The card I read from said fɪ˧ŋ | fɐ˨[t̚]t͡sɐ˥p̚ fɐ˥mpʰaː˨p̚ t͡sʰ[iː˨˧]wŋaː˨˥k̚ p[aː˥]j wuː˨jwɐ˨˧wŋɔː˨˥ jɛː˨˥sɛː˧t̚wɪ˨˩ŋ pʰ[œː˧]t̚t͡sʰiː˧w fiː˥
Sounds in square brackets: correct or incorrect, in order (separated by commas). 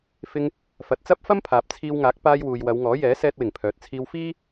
correct, incorrect, incorrect, incorrect